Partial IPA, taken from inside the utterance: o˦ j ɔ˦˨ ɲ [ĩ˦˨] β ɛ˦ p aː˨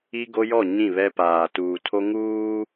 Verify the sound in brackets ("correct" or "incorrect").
correct